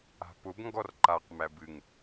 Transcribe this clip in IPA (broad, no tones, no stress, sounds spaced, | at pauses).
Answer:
a̤ p ʊ b ŋ ɡ ɔ r ǃ a q m æ b ɨ ŋ